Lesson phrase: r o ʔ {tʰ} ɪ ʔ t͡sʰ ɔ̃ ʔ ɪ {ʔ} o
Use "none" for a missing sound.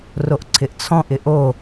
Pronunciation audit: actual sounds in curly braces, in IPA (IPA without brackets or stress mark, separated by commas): ǀʰ, ʔ